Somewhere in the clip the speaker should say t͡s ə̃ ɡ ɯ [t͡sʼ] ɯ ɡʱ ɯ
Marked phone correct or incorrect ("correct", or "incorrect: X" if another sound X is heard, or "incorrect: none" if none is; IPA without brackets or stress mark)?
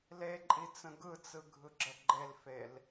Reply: incorrect: t͡s